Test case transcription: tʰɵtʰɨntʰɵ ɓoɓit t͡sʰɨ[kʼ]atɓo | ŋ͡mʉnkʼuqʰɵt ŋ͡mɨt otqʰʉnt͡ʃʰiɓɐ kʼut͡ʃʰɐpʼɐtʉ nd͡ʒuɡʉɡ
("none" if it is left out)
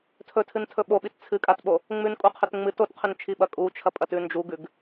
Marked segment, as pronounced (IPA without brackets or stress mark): kʼ